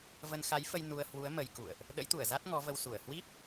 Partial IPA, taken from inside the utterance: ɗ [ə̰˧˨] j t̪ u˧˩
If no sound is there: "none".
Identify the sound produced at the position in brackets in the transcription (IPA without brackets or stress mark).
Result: ə̰˧˥